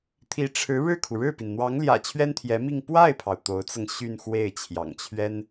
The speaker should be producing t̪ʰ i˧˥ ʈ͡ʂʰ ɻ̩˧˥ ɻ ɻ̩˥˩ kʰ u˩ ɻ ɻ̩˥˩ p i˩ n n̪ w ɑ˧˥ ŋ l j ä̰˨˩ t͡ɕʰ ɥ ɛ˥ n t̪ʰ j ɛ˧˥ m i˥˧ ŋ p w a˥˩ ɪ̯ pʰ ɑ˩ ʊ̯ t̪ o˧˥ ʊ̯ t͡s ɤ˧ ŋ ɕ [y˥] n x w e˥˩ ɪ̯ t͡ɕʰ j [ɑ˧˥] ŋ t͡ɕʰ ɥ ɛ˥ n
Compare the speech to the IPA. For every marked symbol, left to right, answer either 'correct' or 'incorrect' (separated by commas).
incorrect, incorrect